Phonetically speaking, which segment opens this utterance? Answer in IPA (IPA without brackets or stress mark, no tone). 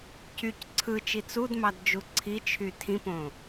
c